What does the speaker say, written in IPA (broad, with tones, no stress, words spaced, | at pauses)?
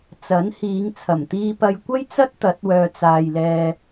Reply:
t͡sɐ˨˥nhiː˨˧ŋ t͡sʰɐ˨˩mt̪iː˧pɐ˧j kʷɐ˥jt͡sɐ˥t̚ t̪ɐ˨˥t̚wœː˨t͡saː˨j lɛː˨